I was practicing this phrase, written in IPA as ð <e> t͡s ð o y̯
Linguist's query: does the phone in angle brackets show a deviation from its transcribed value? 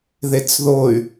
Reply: no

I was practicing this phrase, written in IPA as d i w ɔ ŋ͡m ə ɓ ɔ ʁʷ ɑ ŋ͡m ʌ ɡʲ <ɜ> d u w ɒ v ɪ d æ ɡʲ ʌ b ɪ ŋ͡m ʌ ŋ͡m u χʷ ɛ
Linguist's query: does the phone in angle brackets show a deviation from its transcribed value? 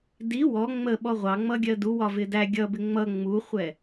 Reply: no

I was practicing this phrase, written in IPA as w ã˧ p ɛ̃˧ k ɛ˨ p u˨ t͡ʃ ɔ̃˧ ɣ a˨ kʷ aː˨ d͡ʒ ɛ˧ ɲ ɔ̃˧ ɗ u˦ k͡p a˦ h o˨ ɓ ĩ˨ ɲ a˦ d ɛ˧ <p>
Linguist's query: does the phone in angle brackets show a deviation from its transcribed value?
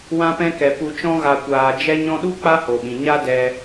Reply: yes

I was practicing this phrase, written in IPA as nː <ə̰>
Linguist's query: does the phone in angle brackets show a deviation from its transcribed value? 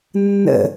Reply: no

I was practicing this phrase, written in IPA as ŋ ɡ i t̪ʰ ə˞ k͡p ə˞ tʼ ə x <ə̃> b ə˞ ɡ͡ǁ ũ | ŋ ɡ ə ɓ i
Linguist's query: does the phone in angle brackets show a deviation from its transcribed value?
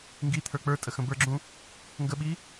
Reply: no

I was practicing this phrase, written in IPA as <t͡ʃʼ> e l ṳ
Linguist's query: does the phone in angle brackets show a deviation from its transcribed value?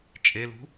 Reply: no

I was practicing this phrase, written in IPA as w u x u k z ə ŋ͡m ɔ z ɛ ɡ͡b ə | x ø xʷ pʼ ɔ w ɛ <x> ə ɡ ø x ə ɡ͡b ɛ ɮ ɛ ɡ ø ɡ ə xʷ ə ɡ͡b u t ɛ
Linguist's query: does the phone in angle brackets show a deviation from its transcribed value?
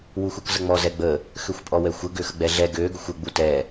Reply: yes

